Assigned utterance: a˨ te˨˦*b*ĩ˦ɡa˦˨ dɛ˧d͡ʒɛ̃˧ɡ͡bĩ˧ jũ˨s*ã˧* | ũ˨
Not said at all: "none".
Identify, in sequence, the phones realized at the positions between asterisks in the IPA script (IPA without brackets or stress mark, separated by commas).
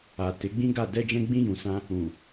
ɡ͡b, ã˧